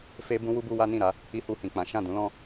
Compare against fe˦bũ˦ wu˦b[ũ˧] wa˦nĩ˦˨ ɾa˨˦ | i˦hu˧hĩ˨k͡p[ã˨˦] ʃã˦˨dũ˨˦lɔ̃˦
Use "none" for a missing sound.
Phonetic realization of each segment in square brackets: u˧, ã˨˦

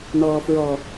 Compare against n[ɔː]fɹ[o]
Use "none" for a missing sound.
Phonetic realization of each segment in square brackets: ɔː, ɔ

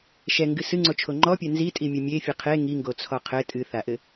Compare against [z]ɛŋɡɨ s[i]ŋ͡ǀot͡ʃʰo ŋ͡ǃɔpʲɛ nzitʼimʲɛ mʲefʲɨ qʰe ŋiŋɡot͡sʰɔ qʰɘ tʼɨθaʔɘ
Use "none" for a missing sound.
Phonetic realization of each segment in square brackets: ʃ, ɨ

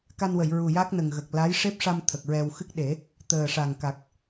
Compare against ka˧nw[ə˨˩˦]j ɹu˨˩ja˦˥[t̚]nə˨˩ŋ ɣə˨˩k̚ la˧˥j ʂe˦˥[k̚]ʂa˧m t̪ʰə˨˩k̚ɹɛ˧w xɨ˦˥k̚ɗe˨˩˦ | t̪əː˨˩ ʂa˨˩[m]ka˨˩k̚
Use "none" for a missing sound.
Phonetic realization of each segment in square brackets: ə˨˩˨, k̚, p̚, ŋ

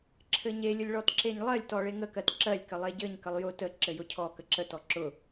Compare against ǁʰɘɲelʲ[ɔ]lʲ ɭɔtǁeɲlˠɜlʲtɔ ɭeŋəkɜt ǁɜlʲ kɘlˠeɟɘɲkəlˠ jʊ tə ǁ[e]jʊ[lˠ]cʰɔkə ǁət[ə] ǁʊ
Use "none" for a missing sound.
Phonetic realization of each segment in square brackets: ʊ, ɘ, none, ɔ

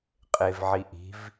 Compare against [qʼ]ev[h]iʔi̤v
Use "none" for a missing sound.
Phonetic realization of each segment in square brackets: qʼ, ʕ

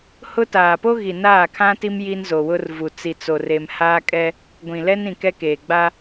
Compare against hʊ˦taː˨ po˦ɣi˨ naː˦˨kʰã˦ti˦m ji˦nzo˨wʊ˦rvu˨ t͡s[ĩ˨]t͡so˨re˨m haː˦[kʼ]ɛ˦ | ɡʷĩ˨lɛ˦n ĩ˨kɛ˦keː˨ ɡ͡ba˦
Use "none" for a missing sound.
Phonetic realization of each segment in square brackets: i˨, kʼ

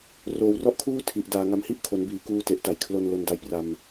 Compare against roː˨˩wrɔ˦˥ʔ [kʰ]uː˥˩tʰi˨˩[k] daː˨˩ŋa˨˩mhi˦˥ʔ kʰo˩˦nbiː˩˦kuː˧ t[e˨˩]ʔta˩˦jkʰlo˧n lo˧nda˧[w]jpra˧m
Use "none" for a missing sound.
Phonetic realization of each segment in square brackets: kʰ, ʔ, e˨˩, none

